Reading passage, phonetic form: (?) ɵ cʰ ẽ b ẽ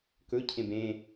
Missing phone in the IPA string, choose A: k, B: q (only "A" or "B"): A